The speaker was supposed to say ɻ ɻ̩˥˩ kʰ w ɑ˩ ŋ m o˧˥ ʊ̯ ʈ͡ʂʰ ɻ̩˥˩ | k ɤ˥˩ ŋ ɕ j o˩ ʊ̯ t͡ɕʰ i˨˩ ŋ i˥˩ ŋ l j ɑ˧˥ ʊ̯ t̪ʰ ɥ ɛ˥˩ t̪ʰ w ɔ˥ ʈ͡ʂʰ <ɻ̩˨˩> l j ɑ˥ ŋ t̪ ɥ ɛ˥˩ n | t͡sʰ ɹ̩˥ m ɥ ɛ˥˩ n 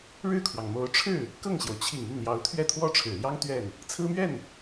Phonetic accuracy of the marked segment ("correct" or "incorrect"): correct